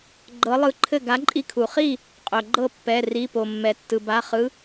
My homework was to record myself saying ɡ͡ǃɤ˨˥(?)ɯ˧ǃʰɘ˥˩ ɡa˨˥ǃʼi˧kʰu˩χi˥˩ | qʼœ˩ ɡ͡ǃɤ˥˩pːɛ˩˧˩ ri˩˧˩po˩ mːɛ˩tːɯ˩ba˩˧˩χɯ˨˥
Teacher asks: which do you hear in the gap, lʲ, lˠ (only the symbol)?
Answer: lˠ